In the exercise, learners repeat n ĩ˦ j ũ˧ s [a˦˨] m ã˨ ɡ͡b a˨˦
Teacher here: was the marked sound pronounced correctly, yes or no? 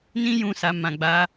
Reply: no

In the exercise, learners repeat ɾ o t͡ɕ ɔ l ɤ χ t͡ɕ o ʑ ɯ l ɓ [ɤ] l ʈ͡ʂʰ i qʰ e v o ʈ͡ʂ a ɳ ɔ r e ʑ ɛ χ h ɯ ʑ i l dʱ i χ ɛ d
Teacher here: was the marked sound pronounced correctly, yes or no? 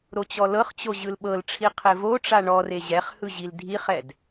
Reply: yes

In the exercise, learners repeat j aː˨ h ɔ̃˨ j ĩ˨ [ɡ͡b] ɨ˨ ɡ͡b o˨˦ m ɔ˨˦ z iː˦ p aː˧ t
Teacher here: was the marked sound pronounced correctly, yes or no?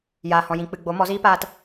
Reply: no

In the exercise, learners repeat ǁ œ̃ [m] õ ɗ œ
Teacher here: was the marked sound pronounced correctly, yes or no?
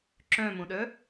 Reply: yes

